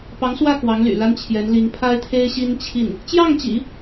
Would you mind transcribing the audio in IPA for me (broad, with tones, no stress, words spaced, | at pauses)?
pɑ˧˥ŋswä˥˩ kwɑ˧˥ŋly̰˨˩ la˥nt͡ɕʰjɛ˧˥nli˧˥ŋ pʰa˥ɪ̯t̪ʰe˥ɪ̯ɕi˥nt͡ɕʰi˥˩n | t͡ɕjɑ˥˩ŋt͡ɕḭ˨˩˦